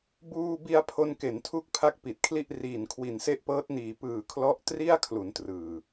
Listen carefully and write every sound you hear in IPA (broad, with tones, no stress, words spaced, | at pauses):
buː˧bi˧a̯ pʰo˧nke˩˦ntʰu˦˥k̚ pʰa˥˩k̚pi˨˩t̚kʰli˥˩ʔ riː˨˩nkʰwi˨˩nse˦˥ʔpɤː˦˥t̚ niː˨˩pɯː˨˩ kʰlɔ˦˥ʔtri˥˩a̯kʰlu˩˦n trɯː˨˩